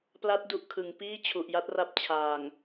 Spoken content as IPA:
p l a˦˥ t̚ d u˨˩ ʔ kʰ ɯ˩˦ ŋ p iː˥˩ t͡ɕʰ u˨˩ ʔ j a˦˥ t̚ r a˦˥ p̚ t͡ɕʰ aː˨˩ ŋ

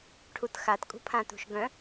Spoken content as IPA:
ʈʰ u t x a t kʼ ṳ pʰ ã t ṳ ʃ ɡ œ̃

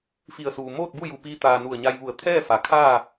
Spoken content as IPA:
f i˧˩ ə̯ s uː˩ m oː˥˨ t̚ b u˥˨ j u˧˩ p iː˧ t̪ aː˩ n u˧˩ ə̯ ɲ a˧ j ʋ u˧˩ ə̯ t̪ʰ ɛː˥˨ f a˩˧ kʰ aː˥˨

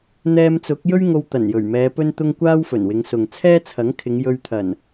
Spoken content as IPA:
n̪ ɛː˧ m t͡s ʊ˨˥ k̚ j ɵ˥ ɥ ŋ o˧ w t̪ ɐ˨˩ n j ɵ˨˩ ɥ m ɛː˨˧ p ɵ˥ n t̪ ʊ˥ ŋ kʷ aː˥ w f ɵ˨˩ n w ɪ˨˧ ŋ s ʊ˨ ŋ t͡sʰ ɛː˥ t͡sʰ ɐ˨˥ ŋ kʰ ɪ˨˧ ŋ j ɵ˧ ɥ t̪ʰ ɐ˨˩ n

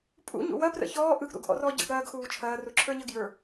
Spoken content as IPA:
pʼ ṵ ɲ ṵ w ɐ p r ə̰ ç ɔː ʔ ɯ ɡ ɾ ṵ ɡ ʔ ɔ̰ r ɔː ɟ ə̰ ɡ ɾ ɐː ɡ x uː t͡ʃʰ ɐː r u ǁʰ ə˞ ɲ ə ɡ j ə˞

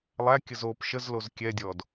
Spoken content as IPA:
lˠ æ kʲ ə z o p ʃ ə z l o z kʲ ɛ dʲ ɔ d

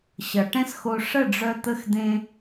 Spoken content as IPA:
ɕ ʌ˨ ʈ ɛ̃˦ s x o˧ ʂ ə˦˨ ɖ͡ʐ œ˧ t̪ ə˦ x d̪ ẽ˦

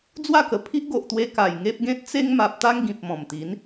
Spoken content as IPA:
d͡z w a˥˧ k ə˨˩ pʰ i˦ ʔ ɡ o˨ ʔ t̪ w e˧ k a˨˩ j ŋ e˦ p̚ ɡ ẽ˦ t̚ t͡s e˦ ŋ m a˨ p̚ t̪ a˦ ŋ ɡ ĩ˨ p̚ m ɔ̃˨˩ m t̪ i˨˦ n

